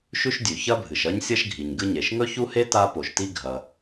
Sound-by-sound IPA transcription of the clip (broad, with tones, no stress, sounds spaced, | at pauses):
ʃ ʉ˥ ʃ dʲ ʉ˩ ç ɐ˥ bʱ ɨ˩ ʃ ɐ˥ ɲ sʲ ɐ˥ ʃ ɡʱ i˩ ɲ ɡ ɨ˥ ɲ e˩ ʃ ŋ ɵ˥ ç u˥ h e˥ t a˥ p o˩ ʃ t i˥ ɡʱ ɐ˩